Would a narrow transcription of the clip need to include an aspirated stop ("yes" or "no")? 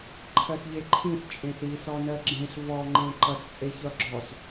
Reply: yes